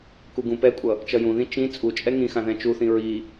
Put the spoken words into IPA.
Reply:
k u ɡ ũ p ɛ kʷʼ ʌ | t͡ʃ ʌ j ũ ð ĩ t͡ʃ ĩ t͡sʼ u t͡ʃʼ ɛ ŋ ĩ x ã ð ɛ̃ t͡ʃ u θ ĩ ɹ i

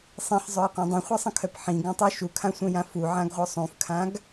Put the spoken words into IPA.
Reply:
sˤ ĩ ħ zˤ œ j qʷ ã dˤ ũ χʷ a sˤ ə̃ kʰ œ p ħ ĩ ɡ œ̃ tˤ u ʃ u kʰ ã sʷ œ̃ j ã f u ʕ ã ɡ ʁʷ œ sˤ ũ f kʰ ã ɡ

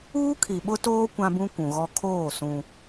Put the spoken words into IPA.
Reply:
uː˦ kʰ i˨ ɓ ʊ˦ t oː˦ kʷ ã˦ b ũ˦ kʷ ũ˨ ɣ ɔ˦ kʰ oː˦˨ s ũ˦

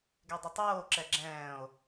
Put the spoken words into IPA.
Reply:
ɡ e dˤ ɯ tˤ oː ǁ ɛ ɡ͡ǁ ɛ̃ː o̯

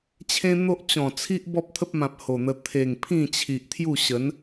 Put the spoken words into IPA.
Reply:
t͡ɕʰ ẽ˦ n̪ o˦ ʔ t͡ɕ ɔ̃˨˩ t͡sʰ i˦ ʔ b ɔ˦ p̚ t̪ʰ ə˦ p̚ m ã˨ p̚ h o˨˩ n̪ ə˧ t̪ʰ e˨˩ ŋ pʰ ĩ˥˧ t͡ɕʰ i˨ ʔ t̪ʰ j u˥˧ ɕ ə˨˦ n

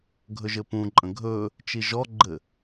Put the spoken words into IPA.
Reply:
ɡʱ ɵ ʒ ɘ p ũ ǃʼ ə̃ ɡʱ ɵ | t͡ʃ i ʒ ɔ ɡ͡ǃ ɘ

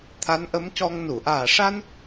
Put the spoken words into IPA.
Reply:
t̪ʰ a˧˥ n ʔ ə˧˥ m c ɔ˧ ŋ n u˨˩˨ ʔ aː˨˩ ʂ a˧ n

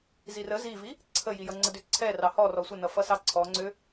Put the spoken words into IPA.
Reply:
z i r ə z i v i | ǀʰ ə j i j ʌ ŋ͡ǀ ə d ʏ ǀʰ ɛ r ɑ h ɔ r ɔ sʷ ə n ʌ f ʌ s ɑ ǀʰ ɔ ŋ͡ǀ ʏ

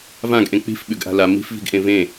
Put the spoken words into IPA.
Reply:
v ã ɡ ʔ ẽ k͡p i̤ f ɓ ʉ ɡ ʔ a̤ l a m i̤ f v i̤ ɡ ʔ ẽ v ẽ

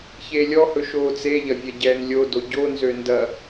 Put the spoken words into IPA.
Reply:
ç eː lʲ ɔ h ɵ ʃ oː t͡s e ʎ ɐ vʲ ɛ ɟ ɛː n lʲ o d o ɟ o n z ø n d ɐ

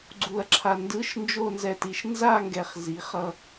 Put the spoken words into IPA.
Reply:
ɡ͡ǀ u˧ ɐ̯ ǁʰ a˧ n d ɯ˧˥˧ ʃ n d͡ʒ o˥˧ n z ɛ˧ t i˩˧ ʃ n z a˥˧ ŋ ɡ ɛ˧ χ z i˩˥ χ ʌ˧

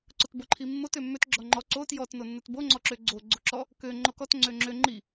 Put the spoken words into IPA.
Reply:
ǀ ʊ t b o ǃʰ i mː o t ø mː ø t ɡ͡ǁ ɔ ŋ͡ǃ ɔ ǀ o t j ɔ t n o nː ʊ t b o ŋ͡ǀ ɔ ǁ ø ɡ͡ǀ o ɡ͡ǀ o ǁ ɔ | k ø ŋ͡ǃ o k ɔ t ŋ͡ǀ ø ŋ͡ǁ ø ŋ͡ǃ i

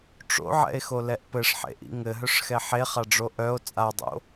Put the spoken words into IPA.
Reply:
ʈ͡ʂ o̰ ʕ ɛ̰ e̯ x o l ɛ ʔ p ɘ ʂ ħ ḛ ʔ ḭ ŋ ɘ ɦ œ ʂ x ɛ ħ e χ a ɖ͡ʐ o ʔ œ o̯ t͡sʼ a dˤ o̰

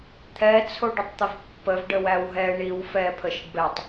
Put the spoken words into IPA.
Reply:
t̪ʰ ɛ t͡sʰ o ɖ ə tˤ t̪ ə v pː ə v ɖ ə w æ w ɦ ɛ ɳ i w f ɛ pʰ ə ʃ ə ɖ b ɛ tˤ

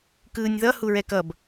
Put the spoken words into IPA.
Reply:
k ɯː nʲ ð ʌ h u ɹ ɛ k ʌ b

